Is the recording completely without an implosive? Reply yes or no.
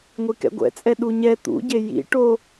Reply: no